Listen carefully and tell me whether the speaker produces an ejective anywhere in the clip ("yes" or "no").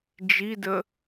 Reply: no